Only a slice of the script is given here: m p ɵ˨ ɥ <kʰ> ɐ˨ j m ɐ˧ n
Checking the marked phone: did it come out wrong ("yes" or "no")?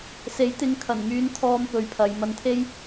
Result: yes